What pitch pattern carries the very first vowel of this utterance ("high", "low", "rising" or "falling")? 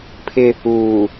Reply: high